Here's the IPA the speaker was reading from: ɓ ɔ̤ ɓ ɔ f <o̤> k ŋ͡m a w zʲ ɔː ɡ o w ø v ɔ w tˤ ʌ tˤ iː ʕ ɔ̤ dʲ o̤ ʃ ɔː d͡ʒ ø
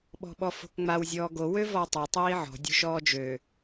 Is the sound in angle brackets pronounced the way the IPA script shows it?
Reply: yes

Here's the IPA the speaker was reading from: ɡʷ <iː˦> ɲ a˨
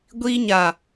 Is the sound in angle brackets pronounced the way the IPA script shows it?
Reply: yes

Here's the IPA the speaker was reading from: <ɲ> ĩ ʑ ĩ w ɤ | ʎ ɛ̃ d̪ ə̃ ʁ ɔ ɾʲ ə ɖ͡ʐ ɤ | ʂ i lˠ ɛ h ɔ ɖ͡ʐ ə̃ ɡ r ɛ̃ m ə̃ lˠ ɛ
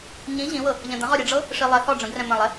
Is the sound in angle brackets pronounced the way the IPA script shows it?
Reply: yes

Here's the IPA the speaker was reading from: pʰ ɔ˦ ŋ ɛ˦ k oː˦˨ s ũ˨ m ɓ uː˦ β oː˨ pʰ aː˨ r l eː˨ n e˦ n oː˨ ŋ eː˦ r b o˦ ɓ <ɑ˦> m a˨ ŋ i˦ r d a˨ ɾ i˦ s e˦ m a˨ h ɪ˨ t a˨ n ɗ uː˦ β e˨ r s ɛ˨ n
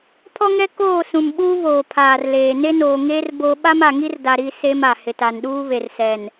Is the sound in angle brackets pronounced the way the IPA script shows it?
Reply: no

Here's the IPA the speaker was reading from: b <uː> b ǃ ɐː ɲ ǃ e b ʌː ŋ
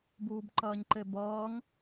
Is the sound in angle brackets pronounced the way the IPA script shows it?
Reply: yes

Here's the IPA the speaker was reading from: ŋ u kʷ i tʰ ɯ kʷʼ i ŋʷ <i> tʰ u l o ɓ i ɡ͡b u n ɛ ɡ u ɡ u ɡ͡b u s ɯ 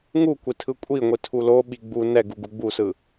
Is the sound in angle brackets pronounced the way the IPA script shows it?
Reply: yes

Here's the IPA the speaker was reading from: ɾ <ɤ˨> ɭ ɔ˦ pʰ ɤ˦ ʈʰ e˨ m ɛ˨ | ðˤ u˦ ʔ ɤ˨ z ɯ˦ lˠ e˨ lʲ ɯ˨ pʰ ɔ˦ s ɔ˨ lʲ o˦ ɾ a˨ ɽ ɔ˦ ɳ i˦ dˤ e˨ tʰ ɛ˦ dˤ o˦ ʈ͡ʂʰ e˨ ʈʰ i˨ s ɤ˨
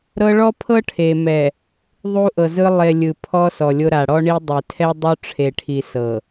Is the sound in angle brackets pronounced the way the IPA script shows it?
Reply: no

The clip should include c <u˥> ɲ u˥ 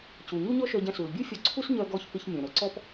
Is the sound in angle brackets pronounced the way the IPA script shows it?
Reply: no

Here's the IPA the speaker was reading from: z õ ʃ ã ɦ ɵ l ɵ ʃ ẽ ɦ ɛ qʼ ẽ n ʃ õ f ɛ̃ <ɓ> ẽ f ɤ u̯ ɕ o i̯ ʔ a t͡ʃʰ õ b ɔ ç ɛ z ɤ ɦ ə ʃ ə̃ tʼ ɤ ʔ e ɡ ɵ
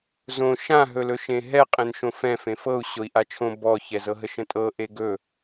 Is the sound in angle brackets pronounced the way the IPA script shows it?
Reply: no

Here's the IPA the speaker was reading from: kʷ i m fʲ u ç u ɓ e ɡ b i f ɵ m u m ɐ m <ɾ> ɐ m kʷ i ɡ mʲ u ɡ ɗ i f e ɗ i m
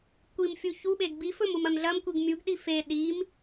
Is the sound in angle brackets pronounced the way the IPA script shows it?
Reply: no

